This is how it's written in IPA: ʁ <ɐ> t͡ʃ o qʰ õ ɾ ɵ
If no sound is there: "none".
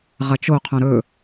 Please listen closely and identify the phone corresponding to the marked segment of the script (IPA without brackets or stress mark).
ɐ